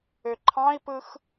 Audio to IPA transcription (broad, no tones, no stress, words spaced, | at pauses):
øǃʰɑ̃i̯pɯx